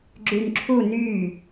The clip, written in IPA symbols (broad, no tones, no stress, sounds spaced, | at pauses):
ɡ͡ǁ y n ǁʰ u n y